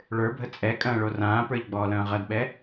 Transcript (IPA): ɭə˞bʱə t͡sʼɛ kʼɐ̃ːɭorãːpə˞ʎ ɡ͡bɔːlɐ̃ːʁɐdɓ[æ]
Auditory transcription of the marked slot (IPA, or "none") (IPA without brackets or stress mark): ɛ